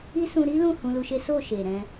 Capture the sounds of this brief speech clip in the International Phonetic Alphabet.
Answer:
i˦sũ˧ ɾi˦lũ˦˨ hũ˧lu˧ʃe˦ so˦˨ ʃe˨ɾɛ̃˧

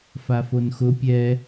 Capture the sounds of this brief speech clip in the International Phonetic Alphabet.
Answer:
fafonxʊ pʲɛ

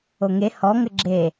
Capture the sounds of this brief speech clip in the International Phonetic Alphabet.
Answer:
oŋe hɔ ŋɘɡ͡ǁe

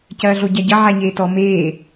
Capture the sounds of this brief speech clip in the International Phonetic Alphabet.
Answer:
cɐːɮoɟæɟɐ ʕæɲeːtɔ meː

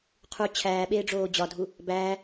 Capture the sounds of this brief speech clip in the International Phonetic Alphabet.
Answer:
qʰu t͡ɕʰæːɓeːɖ͡ʐoː d͡ʑɒdʱu | bæː

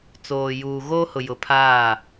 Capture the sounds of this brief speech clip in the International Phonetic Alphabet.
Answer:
t͡soː˨juː˨ ɣoː˦hʊ˨jʊ˨ pʰaː˦˨

